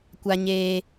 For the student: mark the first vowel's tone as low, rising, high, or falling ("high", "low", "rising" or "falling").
high